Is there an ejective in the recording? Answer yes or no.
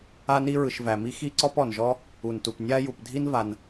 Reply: no